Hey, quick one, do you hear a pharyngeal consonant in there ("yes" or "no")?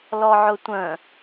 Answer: yes